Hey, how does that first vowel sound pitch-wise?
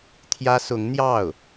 high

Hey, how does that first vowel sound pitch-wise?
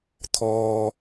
high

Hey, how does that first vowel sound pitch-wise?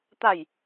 falling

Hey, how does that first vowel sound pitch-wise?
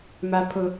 high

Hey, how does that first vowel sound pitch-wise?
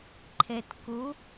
low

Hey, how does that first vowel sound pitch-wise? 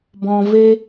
low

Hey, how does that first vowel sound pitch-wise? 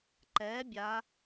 rising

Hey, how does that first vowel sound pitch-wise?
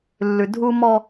low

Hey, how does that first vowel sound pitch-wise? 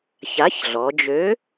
rising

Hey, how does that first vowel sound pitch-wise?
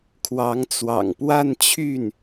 rising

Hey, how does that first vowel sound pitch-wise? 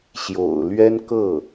low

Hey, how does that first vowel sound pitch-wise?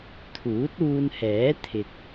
rising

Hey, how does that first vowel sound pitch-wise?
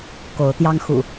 rising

